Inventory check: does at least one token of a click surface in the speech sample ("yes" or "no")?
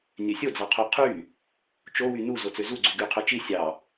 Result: yes